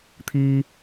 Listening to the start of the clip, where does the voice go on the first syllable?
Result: high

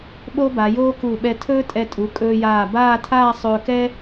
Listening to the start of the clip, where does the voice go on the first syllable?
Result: high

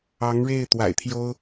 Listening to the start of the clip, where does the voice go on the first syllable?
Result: rising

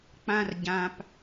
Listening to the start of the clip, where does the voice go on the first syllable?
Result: high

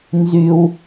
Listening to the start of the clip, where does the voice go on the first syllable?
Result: low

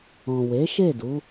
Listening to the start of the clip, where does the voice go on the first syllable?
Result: low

